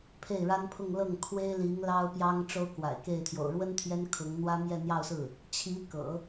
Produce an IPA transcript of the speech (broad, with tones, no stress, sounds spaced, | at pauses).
pʰ e˥˩ ɪ̯ ɻ a˥ n pʰ ʊ˥˧ ŋ l ɤ˥˩ ŋ kʰ w e˥ ɪ̯ l i˧˥ ŋ l ɑ˥ ʊ̯ p j ɑ˥ ŋ ʈ͡ʂ o˥ ʊ̯ k w a̰˨˩ ɪ̯ k e˥˩ ɪ̯ t̪ʰ j o̰˨˩ ʊ̯ ɻ w ə˥ n t̪ʰ j ɛ˥ n kʰ ʊ˧˥ ŋ n̪ w ä˥ m j ɛ˥˧ n̪ j ɑ˥˧ ʊ̯ s ɹ̩˥˩ | t͡ɕʰ i˧˥ k ɤ̰˨˩˦